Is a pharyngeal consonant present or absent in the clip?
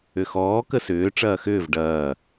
absent